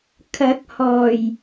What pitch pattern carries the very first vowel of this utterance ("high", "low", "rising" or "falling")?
rising